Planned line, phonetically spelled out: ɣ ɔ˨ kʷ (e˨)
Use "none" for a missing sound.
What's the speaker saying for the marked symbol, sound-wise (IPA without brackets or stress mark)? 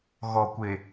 e˨